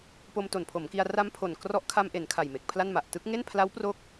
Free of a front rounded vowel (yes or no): yes